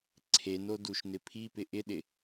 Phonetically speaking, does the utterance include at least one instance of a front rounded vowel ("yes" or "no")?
no